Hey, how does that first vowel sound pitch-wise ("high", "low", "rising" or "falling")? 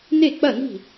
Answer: falling